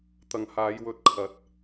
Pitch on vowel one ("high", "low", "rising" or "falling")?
low